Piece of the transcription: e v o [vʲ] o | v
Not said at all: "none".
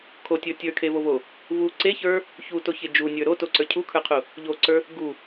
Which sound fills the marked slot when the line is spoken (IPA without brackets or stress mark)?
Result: v